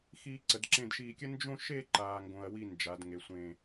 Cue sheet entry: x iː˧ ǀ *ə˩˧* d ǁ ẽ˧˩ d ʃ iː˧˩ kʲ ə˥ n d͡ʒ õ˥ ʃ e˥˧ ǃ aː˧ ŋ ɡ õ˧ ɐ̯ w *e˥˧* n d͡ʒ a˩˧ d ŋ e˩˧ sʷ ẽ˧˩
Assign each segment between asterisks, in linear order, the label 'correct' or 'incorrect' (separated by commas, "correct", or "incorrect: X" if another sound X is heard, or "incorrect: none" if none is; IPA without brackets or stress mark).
correct, incorrect: i˥˧